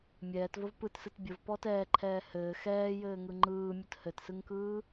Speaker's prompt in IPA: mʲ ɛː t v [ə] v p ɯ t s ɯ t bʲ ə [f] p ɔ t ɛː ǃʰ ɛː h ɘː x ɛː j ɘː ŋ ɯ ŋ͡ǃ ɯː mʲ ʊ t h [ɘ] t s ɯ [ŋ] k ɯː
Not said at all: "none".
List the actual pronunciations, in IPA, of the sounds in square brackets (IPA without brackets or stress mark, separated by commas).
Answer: ə, v, ɘ, ŋ